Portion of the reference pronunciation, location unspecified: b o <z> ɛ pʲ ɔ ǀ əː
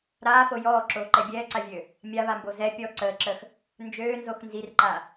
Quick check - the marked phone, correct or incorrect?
correct